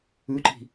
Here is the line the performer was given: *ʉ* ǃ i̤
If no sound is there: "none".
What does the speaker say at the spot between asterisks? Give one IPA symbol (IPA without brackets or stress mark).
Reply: ʉ